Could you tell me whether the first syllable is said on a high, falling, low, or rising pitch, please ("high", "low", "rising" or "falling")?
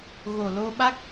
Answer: low